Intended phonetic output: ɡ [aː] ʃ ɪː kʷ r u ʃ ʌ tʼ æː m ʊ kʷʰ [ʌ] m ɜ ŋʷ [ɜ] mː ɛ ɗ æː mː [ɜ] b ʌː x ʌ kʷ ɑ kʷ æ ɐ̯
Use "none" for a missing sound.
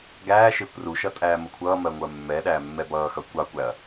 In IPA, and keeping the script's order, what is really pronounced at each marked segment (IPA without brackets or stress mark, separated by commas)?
æː, ʌː, ɜ, ɛ